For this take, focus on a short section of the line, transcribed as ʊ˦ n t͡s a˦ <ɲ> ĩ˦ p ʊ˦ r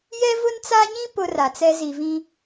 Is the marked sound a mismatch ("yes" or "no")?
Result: no